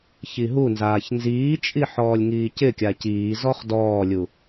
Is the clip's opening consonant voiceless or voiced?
voiceless